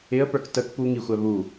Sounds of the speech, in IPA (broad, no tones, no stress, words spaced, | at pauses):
ɪə̯pə˞k tək pu ŋixʷæ βu